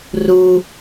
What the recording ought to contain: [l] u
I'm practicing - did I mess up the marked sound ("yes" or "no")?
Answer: yes